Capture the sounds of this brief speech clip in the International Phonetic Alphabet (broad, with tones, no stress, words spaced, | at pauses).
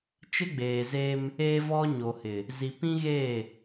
t͡ʃɪ˦ɡ͡beː˨ze˦m | eː˦vɔ˦ɲo˨hɪ˨ | zi˨pĩ˦ɣeː˦˨